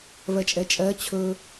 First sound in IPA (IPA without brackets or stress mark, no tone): v